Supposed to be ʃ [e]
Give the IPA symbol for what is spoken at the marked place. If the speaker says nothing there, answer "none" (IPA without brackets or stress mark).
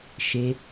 e